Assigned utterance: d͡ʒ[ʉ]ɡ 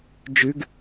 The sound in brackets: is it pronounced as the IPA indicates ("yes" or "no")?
yes